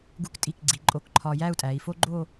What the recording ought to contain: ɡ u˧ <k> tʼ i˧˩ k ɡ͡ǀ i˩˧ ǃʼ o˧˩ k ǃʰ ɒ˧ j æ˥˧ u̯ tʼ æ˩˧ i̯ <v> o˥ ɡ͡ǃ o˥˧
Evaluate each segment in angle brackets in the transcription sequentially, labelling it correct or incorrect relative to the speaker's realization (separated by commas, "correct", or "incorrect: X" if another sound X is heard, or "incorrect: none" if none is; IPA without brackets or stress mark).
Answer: correct, incorrect: f